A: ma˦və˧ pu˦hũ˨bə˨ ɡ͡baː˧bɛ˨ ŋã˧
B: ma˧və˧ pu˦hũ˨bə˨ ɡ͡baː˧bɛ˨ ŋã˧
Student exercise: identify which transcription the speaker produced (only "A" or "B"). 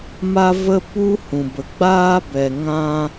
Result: B